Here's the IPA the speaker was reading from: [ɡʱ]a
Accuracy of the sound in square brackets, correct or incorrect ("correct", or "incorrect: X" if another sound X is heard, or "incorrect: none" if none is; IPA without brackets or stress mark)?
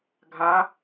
correct